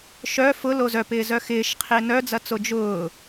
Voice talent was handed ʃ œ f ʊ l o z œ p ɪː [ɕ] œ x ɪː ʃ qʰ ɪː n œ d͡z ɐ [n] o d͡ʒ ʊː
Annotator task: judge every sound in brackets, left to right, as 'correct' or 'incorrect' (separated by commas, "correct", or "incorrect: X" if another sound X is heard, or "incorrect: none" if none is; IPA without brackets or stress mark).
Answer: incorrect: z, incorrect: t͡s